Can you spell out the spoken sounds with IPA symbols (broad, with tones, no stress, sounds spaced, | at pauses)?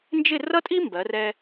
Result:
n d͡ʒ ɪ˥˧ r ʌ˥ tʼ i˥ m b ɜ˩˧ r ɛ˧